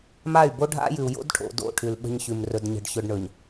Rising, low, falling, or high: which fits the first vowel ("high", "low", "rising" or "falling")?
falling